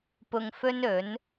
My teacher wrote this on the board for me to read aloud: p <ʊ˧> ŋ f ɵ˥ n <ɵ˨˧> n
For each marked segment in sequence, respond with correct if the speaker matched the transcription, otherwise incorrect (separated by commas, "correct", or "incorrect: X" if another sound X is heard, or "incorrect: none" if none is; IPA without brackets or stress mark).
correct, incorrect: ɵ˨˥